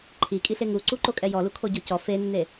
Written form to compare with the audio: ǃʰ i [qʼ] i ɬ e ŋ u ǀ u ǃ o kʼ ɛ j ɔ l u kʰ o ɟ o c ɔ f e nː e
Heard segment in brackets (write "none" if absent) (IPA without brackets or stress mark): kʼ